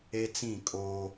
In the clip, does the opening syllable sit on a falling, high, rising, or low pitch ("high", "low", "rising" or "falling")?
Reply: high